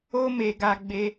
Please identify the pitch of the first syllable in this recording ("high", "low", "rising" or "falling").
high